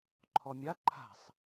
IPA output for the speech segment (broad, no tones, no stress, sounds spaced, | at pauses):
ǃʰ ɔ mʲ a ǃʰ a̤ sˤ